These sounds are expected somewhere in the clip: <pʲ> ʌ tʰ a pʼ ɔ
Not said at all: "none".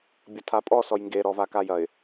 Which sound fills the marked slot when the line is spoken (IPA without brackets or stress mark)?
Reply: bʲ